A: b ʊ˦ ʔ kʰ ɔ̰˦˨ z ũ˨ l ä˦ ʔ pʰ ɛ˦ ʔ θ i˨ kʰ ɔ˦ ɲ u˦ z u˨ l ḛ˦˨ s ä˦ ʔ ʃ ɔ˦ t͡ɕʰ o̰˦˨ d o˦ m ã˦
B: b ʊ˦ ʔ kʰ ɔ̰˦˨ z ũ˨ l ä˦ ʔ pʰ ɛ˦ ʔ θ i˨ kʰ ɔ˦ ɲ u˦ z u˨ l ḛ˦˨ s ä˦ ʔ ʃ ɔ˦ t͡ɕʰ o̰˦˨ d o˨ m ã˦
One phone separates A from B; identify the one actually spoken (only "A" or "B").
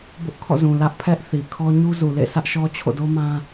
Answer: A